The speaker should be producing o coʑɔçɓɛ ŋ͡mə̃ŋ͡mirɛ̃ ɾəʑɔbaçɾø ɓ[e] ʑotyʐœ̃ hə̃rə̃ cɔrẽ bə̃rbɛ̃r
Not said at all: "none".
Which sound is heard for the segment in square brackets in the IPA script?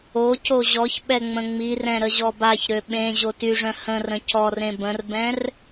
ẽ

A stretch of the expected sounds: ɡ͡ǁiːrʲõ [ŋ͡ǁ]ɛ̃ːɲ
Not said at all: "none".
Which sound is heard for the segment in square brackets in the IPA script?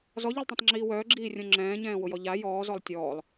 ŋ͡ǁ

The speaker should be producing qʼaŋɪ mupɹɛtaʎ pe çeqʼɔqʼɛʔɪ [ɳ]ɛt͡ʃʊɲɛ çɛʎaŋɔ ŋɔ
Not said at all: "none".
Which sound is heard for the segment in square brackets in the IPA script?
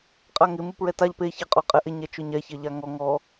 ɲ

